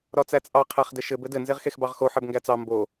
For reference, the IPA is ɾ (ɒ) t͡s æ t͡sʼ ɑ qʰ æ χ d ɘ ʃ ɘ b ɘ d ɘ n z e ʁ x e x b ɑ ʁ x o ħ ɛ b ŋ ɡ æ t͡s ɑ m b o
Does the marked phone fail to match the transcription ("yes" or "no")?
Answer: no